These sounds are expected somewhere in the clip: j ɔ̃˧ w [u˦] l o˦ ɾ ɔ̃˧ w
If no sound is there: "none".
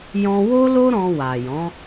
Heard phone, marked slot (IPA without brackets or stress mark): o˦